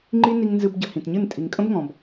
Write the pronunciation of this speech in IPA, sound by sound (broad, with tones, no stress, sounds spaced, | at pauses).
ŋ͡ǃ i˦ n i˧ ŋ n z ɨ˧ b ɟ ə˨ h ĩ˨ t ɲ ɨ˦˨ n tʼ i˨ ŋ kʼ ə̃˦ b ŋ ɔ̃˨ b